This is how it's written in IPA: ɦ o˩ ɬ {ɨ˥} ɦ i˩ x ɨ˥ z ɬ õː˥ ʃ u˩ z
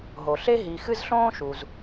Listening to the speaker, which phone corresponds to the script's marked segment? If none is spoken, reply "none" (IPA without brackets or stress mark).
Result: e˥